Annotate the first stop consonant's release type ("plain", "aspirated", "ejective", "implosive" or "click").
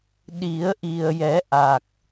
implosive